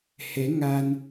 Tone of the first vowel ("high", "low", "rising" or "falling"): rising